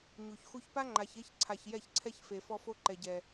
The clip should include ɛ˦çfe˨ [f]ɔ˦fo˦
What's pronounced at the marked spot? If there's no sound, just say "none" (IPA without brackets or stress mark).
f